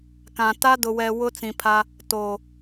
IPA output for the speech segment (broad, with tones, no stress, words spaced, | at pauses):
kã˨ ta˦dʊ˨wɛ˨ wʊ˦t͡sĩ˨pʰa˦ | toː˨